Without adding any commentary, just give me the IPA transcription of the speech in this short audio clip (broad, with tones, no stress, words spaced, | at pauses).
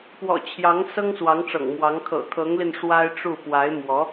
pwɔ̰˨˩ t͡ɕʰjɑ˧˥ŋ sɤ˥ŋswɑ˧˥ŋʈ͡ʂɤ̰˨˩ŋmwɑ˧˥ŋ kʰɤ̰˨˩kʰɤ˧˥ŋli˧n ʂwa˥ɪ̯ʈ͡ʂu˥˩ pwa˧˥ɪ̯mwɔ˧˥